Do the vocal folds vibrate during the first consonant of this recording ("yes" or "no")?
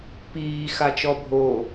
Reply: no